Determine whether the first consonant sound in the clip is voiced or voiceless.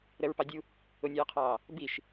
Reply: voiced